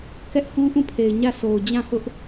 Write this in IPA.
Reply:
kɛ˦ʔhũ˦ʔũ˦˨pʰe˨ɪ̯ ɲä˦˨sʰo˨ʊ̯ d͡ʑã˦˨hʊ˦ʔ

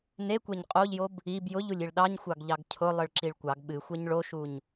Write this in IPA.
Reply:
nekʷɛɲ qʼoʎjob | ib jʊʎulʲiɭ ɗɑɲxʷɑɡʎɑɡ cʰʊlˠɨɭǁiɭ kʷɑɡ ɓɨxʷɛɲ ɭoʃuɲ

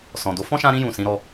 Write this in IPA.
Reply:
sɔ̃˨do˨˦ fɔ̃˦ʃã˧ɾĩ˧ jũ˨ sĩ˨˦ɾɔ˧

